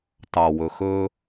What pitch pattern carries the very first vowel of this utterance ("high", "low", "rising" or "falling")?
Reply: low